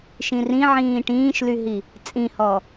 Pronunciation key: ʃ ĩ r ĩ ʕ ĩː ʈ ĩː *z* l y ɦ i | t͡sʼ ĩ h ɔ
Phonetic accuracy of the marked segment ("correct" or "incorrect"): incorrect